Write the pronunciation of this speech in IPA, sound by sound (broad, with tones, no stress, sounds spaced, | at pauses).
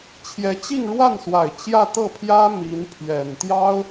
t͡ɕʰ j ɛ˧˥ t͡ɕ i˥˧ ŋ ɻ w a˥˩ n s w a˨˩ ɪ̯ t͡ɕ j ä˥˧ t̪ ɤ˥˩ pʰ j ä˥ m i˧˥ n pʰ ɥ ɛ˨˩ n t̪ j ɑ˥ ʊ̯